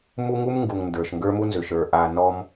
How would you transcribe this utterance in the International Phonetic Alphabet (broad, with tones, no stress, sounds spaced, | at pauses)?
m u˦ ŋ u˦ m ŋ ɡ u˨ ŋ n d ə˞˨ ʃ ŋ ɡ ə˞˦ m u˦ n z ʏ˨ ʃ ə˞˨ ʔ a˨ n ɔ˦ m